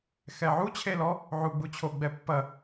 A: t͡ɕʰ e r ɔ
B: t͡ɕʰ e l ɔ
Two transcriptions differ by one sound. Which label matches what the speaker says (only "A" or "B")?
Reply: B